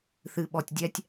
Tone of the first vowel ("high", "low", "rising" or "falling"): low